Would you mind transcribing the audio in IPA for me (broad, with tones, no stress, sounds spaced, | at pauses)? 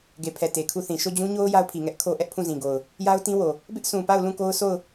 ɡ e˨ pʰ ɛ˨ t e˨ kʰ u˦˨ θ ĩ˨ ʃ o˦˨ d͡ʑ ũ˦ ɲ o˦ ʊ̯ j a˦ ʊ̯ pʰ i˨ ŋ ɛ˦ ʔ kʰ o˦ ʔ ɛ˦ ʔ pʰ ũ˦˨ z ĩ˨ ɡ o˨ ʊ̯ | j a˦ ʊ̯ t ĩ˦ w o˨ | b ɪ˦ ʔ sʰ ũ˨ p a˦˨ ʊ̯ l ũ˦˨ k o˦ ʊ̯ sʰ o˦˨ ʊ̯